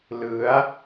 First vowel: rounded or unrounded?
unrounded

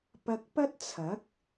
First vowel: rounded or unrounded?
unrounded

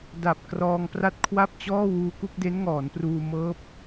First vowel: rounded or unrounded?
unrounded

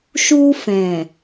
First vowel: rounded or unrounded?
rounded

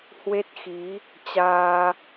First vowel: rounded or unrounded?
unrounded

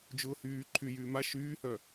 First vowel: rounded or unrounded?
rounded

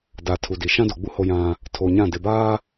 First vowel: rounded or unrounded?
unrounded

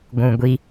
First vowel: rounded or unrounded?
rounded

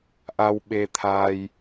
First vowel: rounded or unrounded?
unrounded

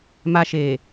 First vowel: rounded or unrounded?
unrounded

